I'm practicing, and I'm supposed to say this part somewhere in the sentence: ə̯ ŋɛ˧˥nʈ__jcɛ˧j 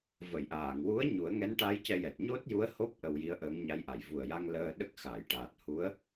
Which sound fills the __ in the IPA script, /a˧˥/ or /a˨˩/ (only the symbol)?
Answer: a˧˥